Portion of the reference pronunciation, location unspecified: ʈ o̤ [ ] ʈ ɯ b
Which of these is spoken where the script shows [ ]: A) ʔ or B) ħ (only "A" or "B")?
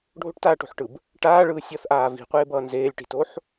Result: B